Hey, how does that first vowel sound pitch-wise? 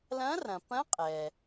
rising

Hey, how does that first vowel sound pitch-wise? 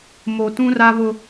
low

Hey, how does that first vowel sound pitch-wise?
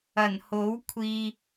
low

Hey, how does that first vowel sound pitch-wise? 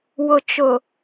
low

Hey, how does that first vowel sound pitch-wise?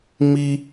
high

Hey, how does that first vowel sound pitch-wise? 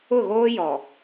falling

